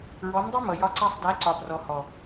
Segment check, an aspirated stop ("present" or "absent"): absent